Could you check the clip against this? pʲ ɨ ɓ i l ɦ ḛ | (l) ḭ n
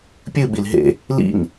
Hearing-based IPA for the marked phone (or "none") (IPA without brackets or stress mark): l